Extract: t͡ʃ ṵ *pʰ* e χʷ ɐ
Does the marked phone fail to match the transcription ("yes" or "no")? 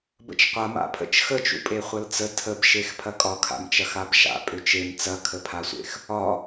yes